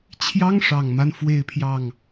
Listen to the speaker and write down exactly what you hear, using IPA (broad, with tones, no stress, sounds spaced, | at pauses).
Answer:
t͡ɕʰ j ɑ˥ ŋ ʂ ɑ˨˩ ŋ m a˦ n f w e˥˧ ɪ̯ pʰ j ɑ˥˩ ŋ